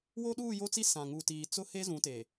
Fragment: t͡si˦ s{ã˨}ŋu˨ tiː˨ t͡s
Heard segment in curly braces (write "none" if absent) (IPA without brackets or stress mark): ã˨